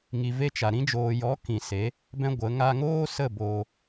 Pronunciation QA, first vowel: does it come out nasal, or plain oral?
oral